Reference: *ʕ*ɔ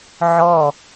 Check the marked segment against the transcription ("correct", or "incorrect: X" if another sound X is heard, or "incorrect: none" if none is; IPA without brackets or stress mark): correct